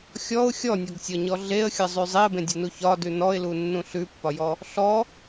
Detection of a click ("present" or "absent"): absent